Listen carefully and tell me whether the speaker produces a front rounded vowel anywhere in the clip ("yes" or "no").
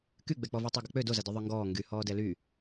yes